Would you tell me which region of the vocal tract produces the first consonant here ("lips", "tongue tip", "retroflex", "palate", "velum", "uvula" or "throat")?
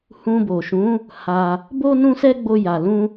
throat